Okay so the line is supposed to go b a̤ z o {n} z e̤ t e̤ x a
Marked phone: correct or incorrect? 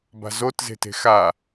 incorrect